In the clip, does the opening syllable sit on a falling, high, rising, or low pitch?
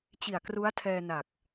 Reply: low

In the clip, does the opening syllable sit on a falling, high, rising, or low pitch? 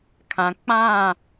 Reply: low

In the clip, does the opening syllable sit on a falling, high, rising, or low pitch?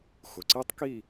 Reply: low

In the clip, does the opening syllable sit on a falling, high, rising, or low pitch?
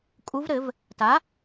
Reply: rising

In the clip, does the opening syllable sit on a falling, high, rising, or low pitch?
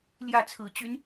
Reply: falling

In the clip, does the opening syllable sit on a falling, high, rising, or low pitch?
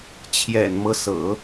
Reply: low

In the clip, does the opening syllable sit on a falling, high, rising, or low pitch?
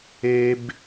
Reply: high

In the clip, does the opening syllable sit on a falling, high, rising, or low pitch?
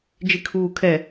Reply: low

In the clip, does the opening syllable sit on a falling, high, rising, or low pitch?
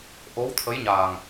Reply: rising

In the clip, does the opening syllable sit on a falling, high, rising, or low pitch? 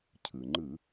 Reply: low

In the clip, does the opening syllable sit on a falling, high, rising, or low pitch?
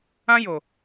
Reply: high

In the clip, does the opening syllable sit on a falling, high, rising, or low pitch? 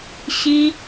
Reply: high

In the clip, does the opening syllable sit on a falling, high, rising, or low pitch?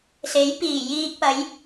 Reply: rising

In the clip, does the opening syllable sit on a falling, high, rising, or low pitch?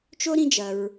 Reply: high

